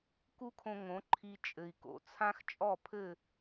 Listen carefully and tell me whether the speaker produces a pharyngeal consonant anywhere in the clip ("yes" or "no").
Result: no